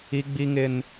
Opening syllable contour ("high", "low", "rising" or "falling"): high